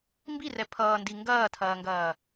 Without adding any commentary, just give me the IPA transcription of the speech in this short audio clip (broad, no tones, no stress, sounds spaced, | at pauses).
m b i r ɛ pʰ ʌː n d i ŋ ɡ ɐː tʰ ɐː ŋ ɡ ɐː